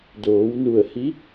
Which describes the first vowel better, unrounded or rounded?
rounded